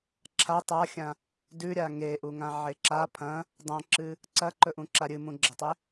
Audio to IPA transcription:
ǁʰa tˤaxʲã | dʉɾʲa ŋeʔuŋãʕe ǁa pʰɐ̃ | dˤãǁɨ | ǀɐǃɵʔũǁa ɾʲɨmũɡ͡ǁɐtˤe

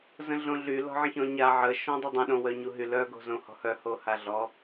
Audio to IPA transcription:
zə̃ɮõɮy lɔ̤ʕə̃çɔ̃ɲa ʕə ʃɔ̃dˤədˤə̃ ɗõwœɲuɦy lœ ɡo̤zõhɔ̤hœ hohaɮɔ

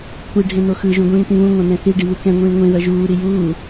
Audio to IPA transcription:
kʷʰi ɖʱẽn̪oxɯ ʒũɡʷĩːt̪ĩβũ ŋʷãn̪ɛ̃θi ɖiβɯkɛ̃ ŋʷĩːŋʷẽ ðʌʒuː ɾijuː

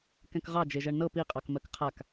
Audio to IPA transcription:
kɛ̃kʁɑ d͡ʒeʒɜɳnɤ piqʼɑkmɜk qʰak

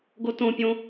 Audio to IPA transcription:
ɡotõpʲõ

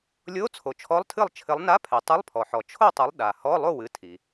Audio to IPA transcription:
lʲo˧˥˧ t͡sʰo˩t͡ʃʰɔ˧˥˧lˠtʰɨ˥˨lˠ t͡ʃʰɘ˨˦lˠna˧˥˧pʰɛ˩ tˤɨ˧˥˧lˠpʰɔ˩ħɔ˩ t͡ʃʰo˥˨tˤɨ˨˦lˠ ɗa˩ hɔ˧˥˧lˠo˥˨ wɨ˨˦tʰi˩

